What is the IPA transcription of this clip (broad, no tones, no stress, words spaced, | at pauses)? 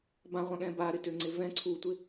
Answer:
bãʁʷãɠɛ̃ baɾɪtøŋ͡ǀɪ vɛ̃ ǀʰutʷɪ